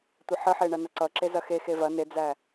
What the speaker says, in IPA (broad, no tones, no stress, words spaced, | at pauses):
tʷəħəħe ɳɐnɐǀʌǁe zɐxexe vɐ ned͡zæ